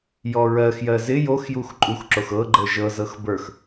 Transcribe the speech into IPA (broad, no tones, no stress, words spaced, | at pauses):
jɔɹɜxjɜ zɪ joxjux ǃʼuxǁox ɤɡ͡ǃɤ ʒɤzɤx bə˞x